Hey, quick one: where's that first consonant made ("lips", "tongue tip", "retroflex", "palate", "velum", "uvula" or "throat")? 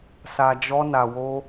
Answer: tongue tip